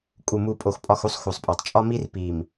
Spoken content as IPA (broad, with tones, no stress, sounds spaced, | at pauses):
kʼ u˨ m u˨ pʼ o˨ x pʼ ɒ˦˨ x u˦ sˤ x u˨ sˤ pʼ ɒ˨ tˤ t͡ʃʼ ɒ˦ m i˦ r p i˨ m